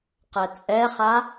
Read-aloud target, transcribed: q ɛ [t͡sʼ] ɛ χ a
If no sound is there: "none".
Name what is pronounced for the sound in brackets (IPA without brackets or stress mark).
t͡sʼ